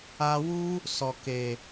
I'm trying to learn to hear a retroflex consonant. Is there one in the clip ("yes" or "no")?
no